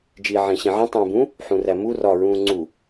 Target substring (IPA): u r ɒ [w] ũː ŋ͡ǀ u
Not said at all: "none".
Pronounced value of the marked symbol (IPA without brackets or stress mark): ɹ